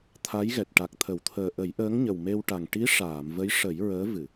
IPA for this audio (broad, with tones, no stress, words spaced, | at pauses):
t̪ʰa˧˥jɣɛ˨˩t̚ ʈa˨˩k̚t̪ʰə˨˩˨wt̪ʰəː˨˩ ʔə˨˩˦jʔəː˧˥ŋ ɲə˨˩wme˧wʈa˨˩ŋ ʈi˧˥ ʂaː˨˩˨mvə˧˥jʂə˨˩˦j ɹəː˧˥ vɨ˨˩˨